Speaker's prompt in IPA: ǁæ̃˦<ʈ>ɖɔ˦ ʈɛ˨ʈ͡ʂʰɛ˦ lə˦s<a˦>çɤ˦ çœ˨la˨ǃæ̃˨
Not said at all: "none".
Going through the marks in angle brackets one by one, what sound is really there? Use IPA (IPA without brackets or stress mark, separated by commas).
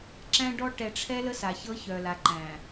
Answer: none, a˨